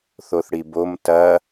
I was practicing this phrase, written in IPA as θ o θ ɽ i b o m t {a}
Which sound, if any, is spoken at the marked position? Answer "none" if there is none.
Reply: ɐ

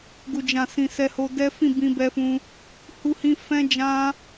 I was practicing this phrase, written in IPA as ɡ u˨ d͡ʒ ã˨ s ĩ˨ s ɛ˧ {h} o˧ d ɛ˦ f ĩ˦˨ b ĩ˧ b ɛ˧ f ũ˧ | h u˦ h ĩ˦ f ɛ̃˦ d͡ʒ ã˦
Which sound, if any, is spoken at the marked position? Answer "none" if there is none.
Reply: h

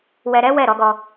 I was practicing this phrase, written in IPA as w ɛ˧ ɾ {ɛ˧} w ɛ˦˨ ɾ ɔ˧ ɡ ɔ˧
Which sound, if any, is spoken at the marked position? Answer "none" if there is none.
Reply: ɛ˦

